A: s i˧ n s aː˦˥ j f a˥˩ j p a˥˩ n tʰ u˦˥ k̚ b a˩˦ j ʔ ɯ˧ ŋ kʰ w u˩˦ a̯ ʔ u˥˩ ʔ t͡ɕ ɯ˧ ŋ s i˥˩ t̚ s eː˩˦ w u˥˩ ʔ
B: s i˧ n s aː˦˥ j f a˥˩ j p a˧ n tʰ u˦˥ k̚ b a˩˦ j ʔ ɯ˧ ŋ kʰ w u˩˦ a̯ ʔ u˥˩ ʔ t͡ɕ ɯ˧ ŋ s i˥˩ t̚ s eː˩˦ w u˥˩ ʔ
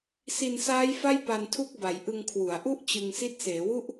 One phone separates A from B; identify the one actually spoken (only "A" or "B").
B